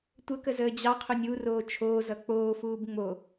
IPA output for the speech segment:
tʷ ə k ə z əː d͡ʑ ɑ qʰ o nʲ u r oː t͡ʃʰ oː z ʌ k͡p oː f uː b ŋ͡m o

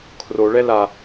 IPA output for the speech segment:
kʰ r o ɭ ɛ l a

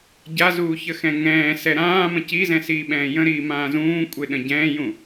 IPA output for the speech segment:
ɟ a z uː ç ə x ɛ̃ ŋ ɛ̃ː s ɛ ɾ ãː m ə̃ c i z ɛ̃ s iː ɓ ɛ̃ː j ə̃ ɾ iː m ãː z ũː kʷʼ e ɗ ə̃ ɟ ɛ̃ː j ũ

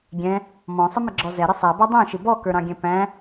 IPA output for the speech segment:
ɡʲ ɛ̃ | m ɔ̃ sˤ ə m ɪ ɡ͡ǁ ɔ z ɛ ɾ ɪ sˤ æ b ɔ dˤ æ̃ ʃ ɪ b ɔ k ə˞ ɾ ɑ̃ ɡʲ ɛ̃ p æ̃

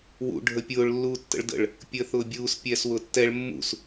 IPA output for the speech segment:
w ṵ ɖʱ ə pʲ ʊː ɭ lː uː tː ə̰ ɭ d ə̰ ɭ | pʲ əː θ ʊː bʲ uː s pʲ ɛː s w ʊː tː ɛ ɭ mː ṵ s

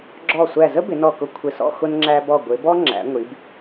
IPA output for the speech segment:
ɡ͡ǁ ɔ˧˩ sʷ æ˧˩ z ə˥ b ɪ˩˧ n ɔ˧˩ k ʊ˧ kʷʰ ɪ˧˩ s ɔ̰˥˧ x ʊ˧ n ŋ͡ǁ æ˧ b ɔ˧˩ ɡʷ ɪ˩˧ b ɔ˥ ŋ͡ǁ æ̰˩˧ ŋʷ i˩˧ b

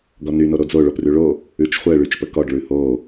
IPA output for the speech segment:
ɡ ɔ n y n o ɾ o d͡z o ɭ o p r ʉ ɭ o | ʉ t͡ʃ χʷ ɛ ɭ y t͡ʃ p ə k ɔ ɖ ɭ ʉ h o

